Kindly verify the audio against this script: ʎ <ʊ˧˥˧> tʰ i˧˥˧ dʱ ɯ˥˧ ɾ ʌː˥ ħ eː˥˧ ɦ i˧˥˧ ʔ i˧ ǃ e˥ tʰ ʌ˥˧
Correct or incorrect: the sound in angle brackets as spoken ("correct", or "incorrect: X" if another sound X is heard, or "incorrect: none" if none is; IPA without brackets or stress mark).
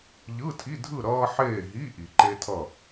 incorrect: ɯ˧˥˧